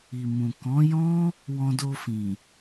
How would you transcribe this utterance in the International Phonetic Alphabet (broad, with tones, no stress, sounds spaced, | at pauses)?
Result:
i˨ m ũ˨ k ɔ̃˨˦ j ɔ̃˦ | w ɔ̃˧ d o˧ f ĩ˨